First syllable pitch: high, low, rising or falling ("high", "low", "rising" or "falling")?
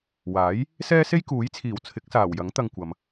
rising